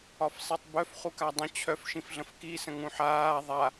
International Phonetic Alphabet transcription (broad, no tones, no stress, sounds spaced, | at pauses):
ɒ f sˤ i tˤ b œ f χ u k a dˤ ə̃ t͡ɕʰ œ f ʃ ĩ f ɮ ə̃ f k i s ə̃ ŋ ũ ħ aː ðˤ a